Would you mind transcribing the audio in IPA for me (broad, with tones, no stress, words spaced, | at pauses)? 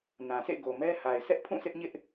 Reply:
nã˨sʰḛ˦˨ ɡo˨mɛ˦ha˨ɪ̯ sɛ˦ʔpʰũ˦˨sɪ˦ʔɲɪ˦ʔ